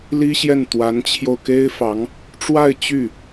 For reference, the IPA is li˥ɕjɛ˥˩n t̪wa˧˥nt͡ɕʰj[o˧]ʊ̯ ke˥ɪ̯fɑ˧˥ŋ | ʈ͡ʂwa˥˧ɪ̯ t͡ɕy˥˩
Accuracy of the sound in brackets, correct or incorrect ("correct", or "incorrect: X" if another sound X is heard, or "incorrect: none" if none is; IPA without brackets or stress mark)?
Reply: correct